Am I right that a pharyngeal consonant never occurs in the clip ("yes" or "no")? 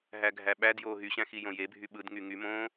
yes